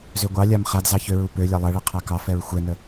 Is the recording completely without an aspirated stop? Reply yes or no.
no